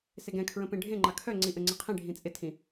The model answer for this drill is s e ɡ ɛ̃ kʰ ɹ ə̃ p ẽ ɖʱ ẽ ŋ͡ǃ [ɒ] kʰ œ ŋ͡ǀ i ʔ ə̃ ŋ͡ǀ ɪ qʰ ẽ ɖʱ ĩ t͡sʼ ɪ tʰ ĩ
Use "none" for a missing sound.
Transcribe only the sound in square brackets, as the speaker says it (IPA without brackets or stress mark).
ɑ